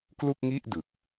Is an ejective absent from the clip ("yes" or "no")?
yes